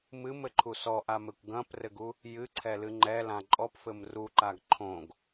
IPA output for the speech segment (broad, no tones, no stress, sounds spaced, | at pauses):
m ɨ m ɘ ǃʰ u s ɔ ʔ a m ɘ kʷ ɡ ɐ̃ p r ɘ ɡ u | j ɨ ǀʰ ɛ l ɨ ŋ͡ǃ ɛ l ã ǃʼ ɔ p f ɘ m r u ǃ a ɡ ǃʰ õ ɡ